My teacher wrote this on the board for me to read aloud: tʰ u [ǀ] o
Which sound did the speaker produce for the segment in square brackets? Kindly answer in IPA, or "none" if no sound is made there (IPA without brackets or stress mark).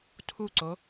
ǀ